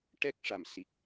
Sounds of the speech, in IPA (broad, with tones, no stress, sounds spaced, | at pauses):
ʈ ɛ˦˥ k̚ ʂ a˨˩ m s i˨˩ k̚